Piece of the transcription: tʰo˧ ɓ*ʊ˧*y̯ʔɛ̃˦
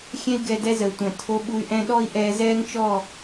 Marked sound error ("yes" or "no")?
yes